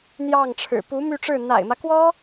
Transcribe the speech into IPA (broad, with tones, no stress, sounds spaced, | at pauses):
n̪ j ɑ˥˩ ŋ ʈ͡ʂʰ ɻ̩˨˩ p u˧˥ m y˥˧ ʈ͡ʂ ɻ̩˥˩ n̪ a̰˨˩ ɪ̯ m ä˦ k w ɔ˥